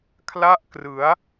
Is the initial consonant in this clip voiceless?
yes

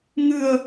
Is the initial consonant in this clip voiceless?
no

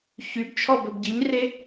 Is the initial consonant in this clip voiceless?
yes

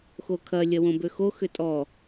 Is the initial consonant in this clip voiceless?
yes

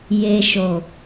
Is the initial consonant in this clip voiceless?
no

